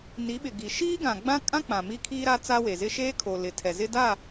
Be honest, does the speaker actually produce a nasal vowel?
yes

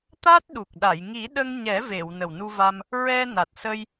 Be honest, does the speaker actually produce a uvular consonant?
no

